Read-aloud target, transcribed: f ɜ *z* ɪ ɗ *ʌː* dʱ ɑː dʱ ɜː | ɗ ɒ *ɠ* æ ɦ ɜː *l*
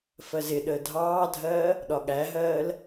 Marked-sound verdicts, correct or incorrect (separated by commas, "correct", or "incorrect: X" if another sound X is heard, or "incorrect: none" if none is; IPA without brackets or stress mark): correct, incorrect: əː, correct, correct